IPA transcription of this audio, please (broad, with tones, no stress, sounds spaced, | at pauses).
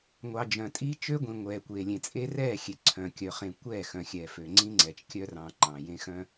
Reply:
ŋʷ ɑ˨ d͡ʒ œ̃˨ tʼ i˦ t͡ʃ ø˦ ɡʷ ĩ˨ ŋʷ ɛː˨ kʷ e˨ lʲ ẽ˨ t͡sʼ e˦ r ɛː˦˨ xʲ e˨ ǀʰ œ̃˨ kʲ œ˨ χ ẽ˨ kʷ ɛː˦˨ x œ̃˨ xʲ ɛː˨ f ø˨ ŋ͡ǀ ĩ˦ ŋ͡ǀ ɛ˨ t͡ʃ kʲ œ˦ r ɑ̃ː˨ ŋ͡ǃ ɑ̃˨ j ẽ˦ x œ̃˦